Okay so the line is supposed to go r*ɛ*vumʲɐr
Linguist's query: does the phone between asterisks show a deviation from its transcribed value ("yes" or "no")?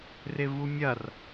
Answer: yes